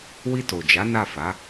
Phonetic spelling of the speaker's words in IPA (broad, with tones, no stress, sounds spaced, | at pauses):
w i˧ t o˨ d͡ʒ a˨˦ n a˦˨ f a˨˦